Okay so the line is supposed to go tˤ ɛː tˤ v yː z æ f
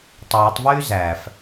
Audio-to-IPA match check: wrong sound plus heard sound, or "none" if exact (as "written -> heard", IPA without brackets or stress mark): none